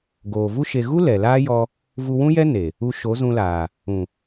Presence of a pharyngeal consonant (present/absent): absent